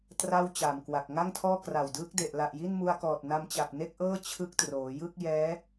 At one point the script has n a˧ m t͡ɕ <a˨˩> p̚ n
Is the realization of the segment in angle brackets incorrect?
no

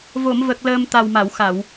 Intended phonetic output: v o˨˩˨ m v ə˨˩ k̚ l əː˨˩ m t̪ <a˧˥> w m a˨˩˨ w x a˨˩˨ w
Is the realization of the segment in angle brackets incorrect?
yes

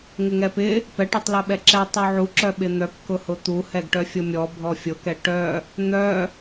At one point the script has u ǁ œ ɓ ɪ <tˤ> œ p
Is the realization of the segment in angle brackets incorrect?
yes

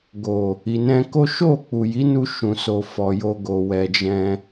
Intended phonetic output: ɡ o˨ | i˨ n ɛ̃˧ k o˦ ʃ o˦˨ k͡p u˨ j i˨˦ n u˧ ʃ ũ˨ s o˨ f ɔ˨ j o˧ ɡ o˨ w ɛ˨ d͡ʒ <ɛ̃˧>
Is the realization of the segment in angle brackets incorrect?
no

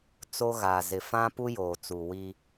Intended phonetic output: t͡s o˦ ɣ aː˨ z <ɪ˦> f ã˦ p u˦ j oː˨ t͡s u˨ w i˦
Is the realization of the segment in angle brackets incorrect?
yes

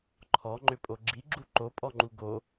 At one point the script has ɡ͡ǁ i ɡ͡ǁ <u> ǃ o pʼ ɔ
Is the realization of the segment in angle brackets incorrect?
no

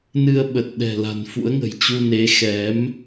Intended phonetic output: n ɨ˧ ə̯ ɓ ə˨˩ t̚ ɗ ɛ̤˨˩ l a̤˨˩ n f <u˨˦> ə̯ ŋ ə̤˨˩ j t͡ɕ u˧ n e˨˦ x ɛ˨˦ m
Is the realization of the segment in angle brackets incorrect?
yes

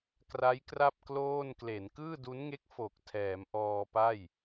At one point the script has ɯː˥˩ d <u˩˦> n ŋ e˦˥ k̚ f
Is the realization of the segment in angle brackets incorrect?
yes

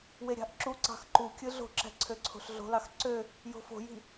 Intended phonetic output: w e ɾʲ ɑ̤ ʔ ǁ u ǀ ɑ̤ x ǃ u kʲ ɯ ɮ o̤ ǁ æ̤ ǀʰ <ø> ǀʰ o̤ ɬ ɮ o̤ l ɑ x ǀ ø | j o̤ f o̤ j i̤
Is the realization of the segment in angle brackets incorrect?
no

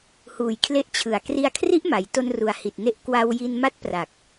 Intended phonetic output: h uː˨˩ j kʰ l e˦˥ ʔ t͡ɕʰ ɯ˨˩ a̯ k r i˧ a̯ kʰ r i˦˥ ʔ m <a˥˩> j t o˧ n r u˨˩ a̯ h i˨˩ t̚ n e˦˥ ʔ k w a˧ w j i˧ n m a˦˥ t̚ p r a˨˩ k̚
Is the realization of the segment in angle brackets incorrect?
yes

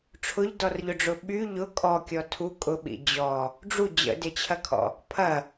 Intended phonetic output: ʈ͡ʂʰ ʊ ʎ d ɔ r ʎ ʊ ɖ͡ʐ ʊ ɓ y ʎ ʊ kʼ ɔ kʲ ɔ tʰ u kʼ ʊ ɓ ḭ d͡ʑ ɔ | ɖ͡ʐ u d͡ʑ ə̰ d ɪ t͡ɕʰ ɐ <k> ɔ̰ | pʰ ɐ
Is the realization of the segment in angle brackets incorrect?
yes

